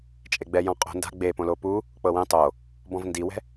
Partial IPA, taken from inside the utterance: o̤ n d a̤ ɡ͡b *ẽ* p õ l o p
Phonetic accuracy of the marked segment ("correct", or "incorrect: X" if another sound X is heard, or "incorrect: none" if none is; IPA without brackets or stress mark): incorrect: e